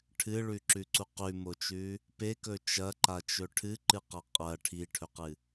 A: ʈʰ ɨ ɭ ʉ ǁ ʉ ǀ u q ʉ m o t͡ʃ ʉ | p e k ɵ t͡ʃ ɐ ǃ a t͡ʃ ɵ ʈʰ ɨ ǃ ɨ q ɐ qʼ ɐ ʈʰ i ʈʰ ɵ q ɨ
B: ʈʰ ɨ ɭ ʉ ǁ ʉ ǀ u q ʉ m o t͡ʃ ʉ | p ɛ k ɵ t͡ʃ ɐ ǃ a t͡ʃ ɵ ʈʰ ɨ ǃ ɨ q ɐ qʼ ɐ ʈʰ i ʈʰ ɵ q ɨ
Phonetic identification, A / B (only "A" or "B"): A